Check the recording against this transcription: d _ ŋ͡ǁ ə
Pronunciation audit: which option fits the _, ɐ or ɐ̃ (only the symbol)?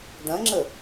ɐ̃